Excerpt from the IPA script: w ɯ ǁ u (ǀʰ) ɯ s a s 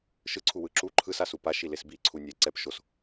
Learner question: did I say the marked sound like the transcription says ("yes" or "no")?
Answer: no